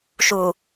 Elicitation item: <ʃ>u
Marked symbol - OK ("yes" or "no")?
yes